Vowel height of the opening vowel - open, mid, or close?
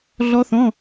mid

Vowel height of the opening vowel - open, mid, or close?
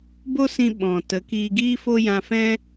mid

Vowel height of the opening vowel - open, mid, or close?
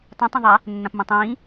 close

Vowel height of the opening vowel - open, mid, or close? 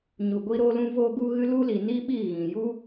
close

